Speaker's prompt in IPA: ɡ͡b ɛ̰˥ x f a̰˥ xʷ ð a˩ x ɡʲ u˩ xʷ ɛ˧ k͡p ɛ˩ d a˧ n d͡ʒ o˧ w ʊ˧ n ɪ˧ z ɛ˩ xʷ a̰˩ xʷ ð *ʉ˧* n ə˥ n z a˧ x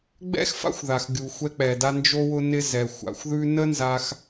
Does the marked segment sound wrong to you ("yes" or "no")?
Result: no